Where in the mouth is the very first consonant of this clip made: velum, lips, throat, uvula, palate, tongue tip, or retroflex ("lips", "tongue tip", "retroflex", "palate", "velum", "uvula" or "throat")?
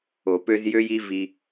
lips